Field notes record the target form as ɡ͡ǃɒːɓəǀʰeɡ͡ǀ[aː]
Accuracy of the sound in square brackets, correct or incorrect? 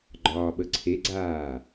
correct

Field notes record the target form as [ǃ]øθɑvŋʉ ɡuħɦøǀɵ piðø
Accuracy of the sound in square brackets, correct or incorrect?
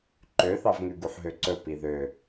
correct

